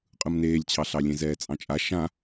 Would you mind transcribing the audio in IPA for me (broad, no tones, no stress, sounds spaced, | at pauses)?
qʼ ɯ m n eː lʲ t͡ɕʰ ɑ ɬ ɑ lʲ ẽ z ɛː t͡sʼ ɑ̃ t͡ʃʼ a ʃ ã